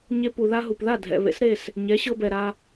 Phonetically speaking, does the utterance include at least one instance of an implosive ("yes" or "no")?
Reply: no